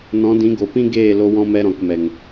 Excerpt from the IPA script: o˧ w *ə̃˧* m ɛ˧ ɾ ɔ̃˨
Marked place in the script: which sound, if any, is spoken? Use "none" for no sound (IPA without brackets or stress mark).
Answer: ɔ̃˧